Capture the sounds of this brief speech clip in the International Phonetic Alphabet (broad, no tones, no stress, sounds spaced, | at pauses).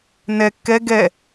n ɛ kː ɛ ɡ ɛ